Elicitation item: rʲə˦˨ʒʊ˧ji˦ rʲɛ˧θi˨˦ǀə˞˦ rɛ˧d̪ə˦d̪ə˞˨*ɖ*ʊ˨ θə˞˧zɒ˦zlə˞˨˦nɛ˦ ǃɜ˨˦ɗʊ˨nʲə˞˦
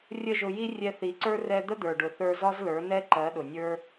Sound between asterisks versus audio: correct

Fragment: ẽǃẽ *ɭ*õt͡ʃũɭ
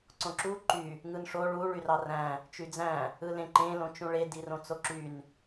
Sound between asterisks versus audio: incorrect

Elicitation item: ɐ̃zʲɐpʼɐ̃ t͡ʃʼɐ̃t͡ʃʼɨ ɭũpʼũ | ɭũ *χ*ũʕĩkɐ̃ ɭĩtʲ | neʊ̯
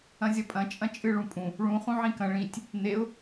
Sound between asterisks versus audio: correct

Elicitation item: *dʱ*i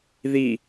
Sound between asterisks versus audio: incorrect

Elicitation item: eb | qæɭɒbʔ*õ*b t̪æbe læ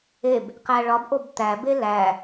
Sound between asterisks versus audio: incorrect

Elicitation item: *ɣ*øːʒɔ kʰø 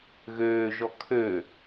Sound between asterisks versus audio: correct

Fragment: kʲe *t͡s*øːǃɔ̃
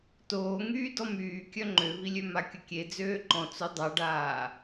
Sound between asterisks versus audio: incorrect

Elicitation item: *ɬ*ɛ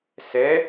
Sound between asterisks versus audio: incorrect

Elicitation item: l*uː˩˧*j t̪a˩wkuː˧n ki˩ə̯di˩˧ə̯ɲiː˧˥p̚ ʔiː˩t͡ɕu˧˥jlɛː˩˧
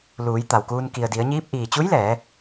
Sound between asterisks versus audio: correct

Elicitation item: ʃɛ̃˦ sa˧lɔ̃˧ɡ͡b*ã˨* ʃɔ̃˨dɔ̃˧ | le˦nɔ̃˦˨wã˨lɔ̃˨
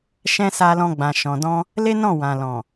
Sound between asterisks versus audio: correct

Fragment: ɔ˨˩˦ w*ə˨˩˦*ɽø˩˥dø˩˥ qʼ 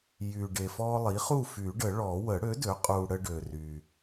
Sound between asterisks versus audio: correct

